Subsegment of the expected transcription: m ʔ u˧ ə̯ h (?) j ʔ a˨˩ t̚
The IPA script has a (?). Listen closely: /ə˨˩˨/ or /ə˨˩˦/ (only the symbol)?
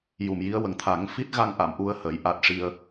ə˨˩˦